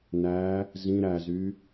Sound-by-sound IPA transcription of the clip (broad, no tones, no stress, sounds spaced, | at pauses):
n æ | z ĩ ɾ æ z y